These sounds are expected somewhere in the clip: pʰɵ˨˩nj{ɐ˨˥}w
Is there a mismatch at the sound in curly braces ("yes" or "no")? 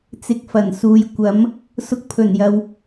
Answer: yes